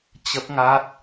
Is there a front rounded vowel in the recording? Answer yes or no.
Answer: no